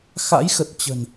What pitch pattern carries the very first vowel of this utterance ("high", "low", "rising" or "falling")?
rising